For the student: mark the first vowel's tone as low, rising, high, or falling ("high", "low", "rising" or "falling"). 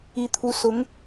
rising